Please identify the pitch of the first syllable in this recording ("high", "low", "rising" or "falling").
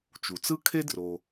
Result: low